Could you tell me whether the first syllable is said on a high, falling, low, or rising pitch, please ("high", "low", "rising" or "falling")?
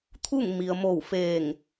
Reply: falling